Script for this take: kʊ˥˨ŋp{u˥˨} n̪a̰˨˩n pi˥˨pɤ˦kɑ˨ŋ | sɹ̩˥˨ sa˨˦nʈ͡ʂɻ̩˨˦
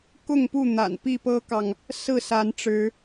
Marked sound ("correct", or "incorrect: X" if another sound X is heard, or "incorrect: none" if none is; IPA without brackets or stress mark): correct